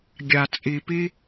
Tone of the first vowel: low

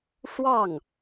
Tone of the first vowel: falling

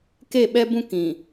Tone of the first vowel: falling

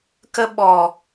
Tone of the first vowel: high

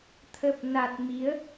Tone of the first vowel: low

